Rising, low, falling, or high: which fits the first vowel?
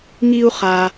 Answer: high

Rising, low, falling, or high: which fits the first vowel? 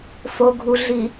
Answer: low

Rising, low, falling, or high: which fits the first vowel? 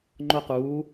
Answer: high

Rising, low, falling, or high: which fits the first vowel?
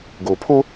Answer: low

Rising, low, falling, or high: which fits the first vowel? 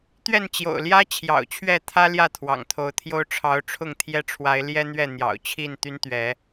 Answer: falling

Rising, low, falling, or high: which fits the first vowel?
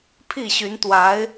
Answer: falling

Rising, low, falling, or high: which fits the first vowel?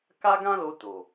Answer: high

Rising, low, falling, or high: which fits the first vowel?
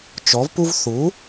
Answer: rising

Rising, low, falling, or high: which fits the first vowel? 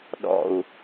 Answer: low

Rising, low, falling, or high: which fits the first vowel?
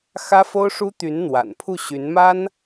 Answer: high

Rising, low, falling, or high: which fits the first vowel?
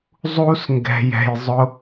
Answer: high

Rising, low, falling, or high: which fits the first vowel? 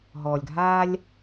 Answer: low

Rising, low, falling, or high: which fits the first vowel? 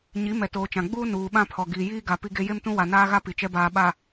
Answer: rising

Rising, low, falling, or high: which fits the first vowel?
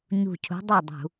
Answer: falling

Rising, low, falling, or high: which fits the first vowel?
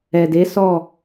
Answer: low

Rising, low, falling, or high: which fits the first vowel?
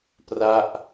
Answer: falling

